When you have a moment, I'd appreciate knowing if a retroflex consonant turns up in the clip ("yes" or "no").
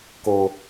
no